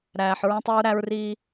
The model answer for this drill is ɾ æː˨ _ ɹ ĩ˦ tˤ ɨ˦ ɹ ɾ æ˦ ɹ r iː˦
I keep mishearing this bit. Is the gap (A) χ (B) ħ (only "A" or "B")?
B